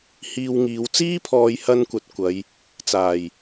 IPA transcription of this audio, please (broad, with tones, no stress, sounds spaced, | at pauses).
h iː˧ w ŋ iː˨˧ w t͡s iː˥ pʰ ɔː˨˧ j h ɐ˧ n kʷ ɐ˨ t̚ kʷ ɐ˨˧ j | t͡s aː˨˩ j